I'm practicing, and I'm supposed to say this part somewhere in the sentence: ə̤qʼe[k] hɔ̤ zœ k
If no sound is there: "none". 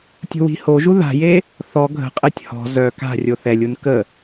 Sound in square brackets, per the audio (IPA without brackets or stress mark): tʲ